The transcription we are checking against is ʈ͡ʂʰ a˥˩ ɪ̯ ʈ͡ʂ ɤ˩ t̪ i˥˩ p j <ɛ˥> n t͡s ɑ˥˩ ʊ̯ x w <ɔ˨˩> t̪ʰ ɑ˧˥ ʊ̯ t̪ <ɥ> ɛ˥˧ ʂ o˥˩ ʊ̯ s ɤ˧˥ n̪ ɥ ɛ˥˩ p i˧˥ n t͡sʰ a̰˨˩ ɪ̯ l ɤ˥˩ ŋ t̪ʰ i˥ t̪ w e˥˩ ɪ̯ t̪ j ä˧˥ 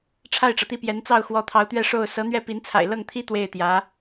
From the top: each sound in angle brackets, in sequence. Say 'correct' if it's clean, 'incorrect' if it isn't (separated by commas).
incorrect, incorrect, correct